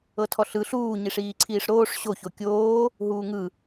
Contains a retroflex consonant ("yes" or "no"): yes